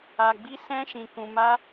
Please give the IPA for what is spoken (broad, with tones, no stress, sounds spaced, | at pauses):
a˧ ɡ͡b i˦ s ɛ̃˦ ʃ ĩ˧ k ũ˧ m a˦